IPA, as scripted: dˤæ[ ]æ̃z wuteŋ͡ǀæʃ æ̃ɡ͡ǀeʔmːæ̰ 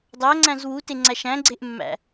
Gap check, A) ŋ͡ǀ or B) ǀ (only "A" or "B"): A